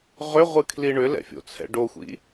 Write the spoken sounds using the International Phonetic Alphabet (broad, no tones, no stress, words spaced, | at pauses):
ʁʏʁʷɨkʰli ɳʏlɛ̰fʲo̰t͡sʰɛ̰ ɖoxʷḭ